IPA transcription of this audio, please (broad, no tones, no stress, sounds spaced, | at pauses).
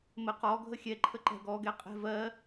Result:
m ə q ɔ ɡʱ ə xʲ ɛ ǃʰ ə ǃ ɛ̤ ɡ ɔ ɡ ɛ qʼ ɛ̤ v ɜ